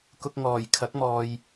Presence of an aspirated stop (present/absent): present